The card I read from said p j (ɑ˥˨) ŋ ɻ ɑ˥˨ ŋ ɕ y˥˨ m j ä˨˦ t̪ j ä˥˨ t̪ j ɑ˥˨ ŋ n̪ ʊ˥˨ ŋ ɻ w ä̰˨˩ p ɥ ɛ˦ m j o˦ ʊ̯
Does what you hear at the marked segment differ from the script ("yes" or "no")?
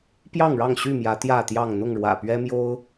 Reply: no